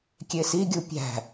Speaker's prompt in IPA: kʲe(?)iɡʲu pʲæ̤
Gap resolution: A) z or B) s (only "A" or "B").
B